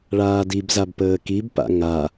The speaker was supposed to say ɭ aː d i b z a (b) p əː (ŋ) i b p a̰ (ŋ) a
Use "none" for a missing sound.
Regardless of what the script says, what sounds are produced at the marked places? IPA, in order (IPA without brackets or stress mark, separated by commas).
b, k, ŋ